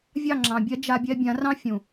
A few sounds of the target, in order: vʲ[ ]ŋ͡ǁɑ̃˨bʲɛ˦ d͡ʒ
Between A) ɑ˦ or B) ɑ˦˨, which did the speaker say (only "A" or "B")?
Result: B